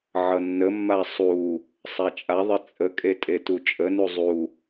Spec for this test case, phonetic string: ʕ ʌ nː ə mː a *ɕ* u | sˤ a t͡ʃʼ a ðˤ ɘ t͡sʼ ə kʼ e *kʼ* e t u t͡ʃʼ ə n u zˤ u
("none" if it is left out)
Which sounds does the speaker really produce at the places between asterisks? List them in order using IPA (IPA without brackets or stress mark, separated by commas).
sˤ, tʼ